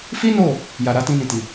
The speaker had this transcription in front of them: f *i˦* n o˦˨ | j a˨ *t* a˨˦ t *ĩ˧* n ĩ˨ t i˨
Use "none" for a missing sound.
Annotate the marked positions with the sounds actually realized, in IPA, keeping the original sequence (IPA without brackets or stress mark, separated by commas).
i˦, ɾ, ĩ˧